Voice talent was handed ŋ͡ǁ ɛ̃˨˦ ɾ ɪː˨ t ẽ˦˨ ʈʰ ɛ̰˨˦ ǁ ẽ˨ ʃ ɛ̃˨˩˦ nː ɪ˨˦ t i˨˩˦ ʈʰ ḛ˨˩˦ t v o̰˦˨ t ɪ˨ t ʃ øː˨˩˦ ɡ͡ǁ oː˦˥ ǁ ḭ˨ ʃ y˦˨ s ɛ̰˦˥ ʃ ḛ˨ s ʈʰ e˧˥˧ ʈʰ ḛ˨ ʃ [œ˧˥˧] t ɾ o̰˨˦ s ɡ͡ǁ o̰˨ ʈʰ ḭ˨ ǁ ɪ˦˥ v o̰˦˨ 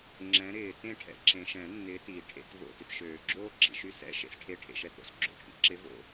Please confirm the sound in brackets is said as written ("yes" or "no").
no